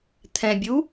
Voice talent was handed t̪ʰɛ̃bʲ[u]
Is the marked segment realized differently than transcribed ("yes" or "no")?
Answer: no